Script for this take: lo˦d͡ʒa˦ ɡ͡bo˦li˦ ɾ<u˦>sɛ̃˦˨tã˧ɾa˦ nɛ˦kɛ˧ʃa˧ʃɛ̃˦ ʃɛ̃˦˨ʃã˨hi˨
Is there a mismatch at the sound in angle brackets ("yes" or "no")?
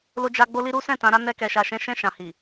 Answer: no